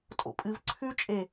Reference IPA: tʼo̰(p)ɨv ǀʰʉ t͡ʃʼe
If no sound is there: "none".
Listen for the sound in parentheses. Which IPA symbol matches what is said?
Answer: pʼ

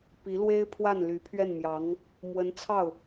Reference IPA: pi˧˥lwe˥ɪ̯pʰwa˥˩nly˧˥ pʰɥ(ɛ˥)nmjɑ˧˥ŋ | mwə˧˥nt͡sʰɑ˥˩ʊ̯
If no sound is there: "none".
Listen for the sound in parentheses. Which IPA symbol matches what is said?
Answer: ɛ˥˩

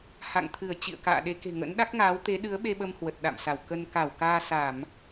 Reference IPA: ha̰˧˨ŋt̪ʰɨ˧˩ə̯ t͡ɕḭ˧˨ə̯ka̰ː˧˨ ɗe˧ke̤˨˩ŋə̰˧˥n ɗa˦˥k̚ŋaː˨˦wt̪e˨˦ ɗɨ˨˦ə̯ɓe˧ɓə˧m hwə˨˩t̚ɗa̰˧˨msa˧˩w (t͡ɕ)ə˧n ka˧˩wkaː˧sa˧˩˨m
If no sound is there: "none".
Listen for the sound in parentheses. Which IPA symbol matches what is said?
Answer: k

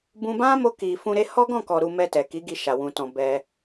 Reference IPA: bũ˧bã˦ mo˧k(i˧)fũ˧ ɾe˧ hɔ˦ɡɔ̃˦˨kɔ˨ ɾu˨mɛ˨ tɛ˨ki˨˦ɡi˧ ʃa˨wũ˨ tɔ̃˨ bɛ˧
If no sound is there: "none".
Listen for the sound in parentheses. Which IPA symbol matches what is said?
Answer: i˨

